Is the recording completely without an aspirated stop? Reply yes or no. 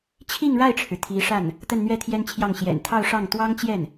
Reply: no